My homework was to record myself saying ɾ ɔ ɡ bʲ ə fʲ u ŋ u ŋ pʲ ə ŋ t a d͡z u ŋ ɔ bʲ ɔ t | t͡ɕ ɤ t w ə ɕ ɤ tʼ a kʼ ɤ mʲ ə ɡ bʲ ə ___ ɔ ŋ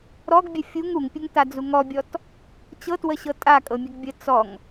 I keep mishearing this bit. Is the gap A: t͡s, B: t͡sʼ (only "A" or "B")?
A